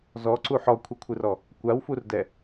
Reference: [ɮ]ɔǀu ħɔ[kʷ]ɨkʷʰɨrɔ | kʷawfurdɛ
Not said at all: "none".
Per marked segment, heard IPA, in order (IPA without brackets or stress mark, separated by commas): z, kʷʰ